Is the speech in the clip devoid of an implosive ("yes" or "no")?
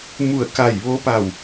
yes